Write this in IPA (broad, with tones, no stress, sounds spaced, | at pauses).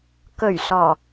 k ɵ˨˩ ɥ s ɔː˨˩